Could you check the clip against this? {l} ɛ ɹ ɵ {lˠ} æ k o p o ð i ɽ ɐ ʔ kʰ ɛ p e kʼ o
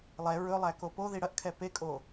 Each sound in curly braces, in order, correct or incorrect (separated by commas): incorrect, correct